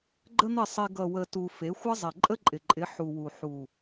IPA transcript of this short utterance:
ɡ͡ǃə˦n̪ɪ˦˨sˤe˧ ɡʌ˨wə˨ tu˧ fe˨˦xʷə˦ zˤe˨ǃʼə˦ǃʼɪ˨ǃʼɪ˨˦ ħu˨wu˨ ħu˨

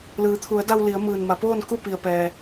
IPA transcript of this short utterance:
lɯː˩˧t̪ʰu˩˧ə̯da˧w li˩˧ə̯ mɯː˩nma˩˧poː˥˨n ku˥˨pi˩ə̯pɛː˩

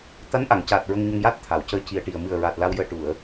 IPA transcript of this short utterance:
t̪a˧˥nʔa˨˩˨ŋcaː˨˩t̚ ɹə˧ŋ ɲə˧ŋja˦˥t̚t̪ʰa˨˩˨wcəː˧˥ ci˨˩ə̯ʈi˨˩ə̯ mɨ˨˩ə̯ɹa˨˩t̚ la˧wjəː˧ ʈu˨˩˨ə̯

